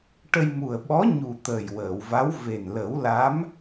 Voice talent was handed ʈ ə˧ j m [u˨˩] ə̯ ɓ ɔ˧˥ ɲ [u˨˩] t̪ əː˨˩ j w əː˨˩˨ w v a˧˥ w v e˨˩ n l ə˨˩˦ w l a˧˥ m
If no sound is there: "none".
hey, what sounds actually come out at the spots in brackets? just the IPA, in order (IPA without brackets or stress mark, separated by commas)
u˨˩, u˨˩